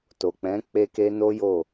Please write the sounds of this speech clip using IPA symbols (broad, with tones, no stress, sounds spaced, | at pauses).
t o˨ k͡p ɛ̃˨˦ k͡p e˦ k e˦ n o˦ j o˦˨